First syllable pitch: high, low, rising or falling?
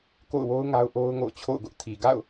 falling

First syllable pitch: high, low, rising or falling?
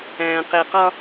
low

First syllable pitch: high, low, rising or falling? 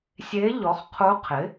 rising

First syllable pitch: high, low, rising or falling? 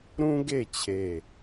high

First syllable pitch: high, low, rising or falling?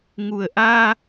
low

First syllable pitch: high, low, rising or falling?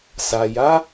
low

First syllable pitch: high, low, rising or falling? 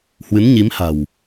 rising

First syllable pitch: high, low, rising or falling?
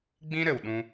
high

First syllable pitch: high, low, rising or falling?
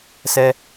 high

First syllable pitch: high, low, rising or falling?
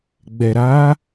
low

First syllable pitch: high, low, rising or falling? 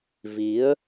rising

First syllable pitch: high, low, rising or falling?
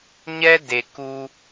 high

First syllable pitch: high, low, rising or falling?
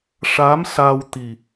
rising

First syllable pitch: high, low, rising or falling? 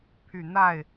low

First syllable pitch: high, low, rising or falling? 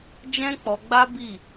high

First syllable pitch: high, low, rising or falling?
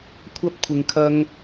high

